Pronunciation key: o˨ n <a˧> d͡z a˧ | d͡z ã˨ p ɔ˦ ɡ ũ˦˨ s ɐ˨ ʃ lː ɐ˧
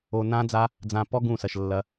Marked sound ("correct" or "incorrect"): incorrect